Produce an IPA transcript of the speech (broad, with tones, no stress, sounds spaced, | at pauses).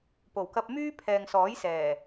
p o˨˩ w k ɐ˧ p̚ m yː˥ pʰ ɛː˨ ŋ s ɔː˨˥ j s ɛː˨˩